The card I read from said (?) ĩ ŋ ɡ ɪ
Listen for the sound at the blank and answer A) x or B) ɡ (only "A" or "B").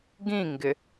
B